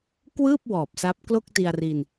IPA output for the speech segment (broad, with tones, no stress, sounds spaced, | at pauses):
k w ɯː˥˩ p̚ w ɔː˨˩ p̚ s a˦˥ p̚ k l o˥˩ k̚ t i˧ a̯ r i˧ n